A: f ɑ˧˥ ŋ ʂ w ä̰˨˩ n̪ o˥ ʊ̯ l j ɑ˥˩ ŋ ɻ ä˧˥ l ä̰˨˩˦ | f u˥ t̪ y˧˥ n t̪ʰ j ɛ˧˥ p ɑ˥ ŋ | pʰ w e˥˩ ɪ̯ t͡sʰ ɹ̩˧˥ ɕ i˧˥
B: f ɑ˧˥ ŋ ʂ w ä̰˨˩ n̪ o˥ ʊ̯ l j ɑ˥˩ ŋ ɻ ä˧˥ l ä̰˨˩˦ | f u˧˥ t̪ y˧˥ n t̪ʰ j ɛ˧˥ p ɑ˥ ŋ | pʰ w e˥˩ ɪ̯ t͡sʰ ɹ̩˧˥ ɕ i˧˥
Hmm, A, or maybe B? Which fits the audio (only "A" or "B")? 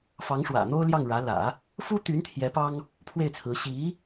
A